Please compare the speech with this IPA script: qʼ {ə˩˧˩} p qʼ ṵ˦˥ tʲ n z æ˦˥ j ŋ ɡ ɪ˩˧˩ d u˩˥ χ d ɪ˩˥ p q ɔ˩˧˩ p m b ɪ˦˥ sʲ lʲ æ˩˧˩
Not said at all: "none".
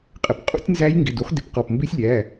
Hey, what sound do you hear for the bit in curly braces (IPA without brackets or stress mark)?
ə˩˧˩